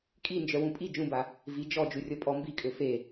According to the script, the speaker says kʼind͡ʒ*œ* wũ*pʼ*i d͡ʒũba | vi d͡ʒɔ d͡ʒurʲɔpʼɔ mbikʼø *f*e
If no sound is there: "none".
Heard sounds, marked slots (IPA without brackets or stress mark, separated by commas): œ, pʼ, f